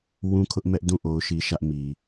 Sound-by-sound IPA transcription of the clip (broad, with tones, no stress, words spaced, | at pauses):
wũ˦kʰʊ˦ʔmɛ˦ʔ dũ˦˨ ʔo˦ʊ̯ʃi˦ʃä˦ʔ mi˨